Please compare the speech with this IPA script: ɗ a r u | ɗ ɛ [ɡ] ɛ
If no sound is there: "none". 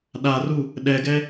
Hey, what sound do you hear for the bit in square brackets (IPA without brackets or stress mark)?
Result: ɡ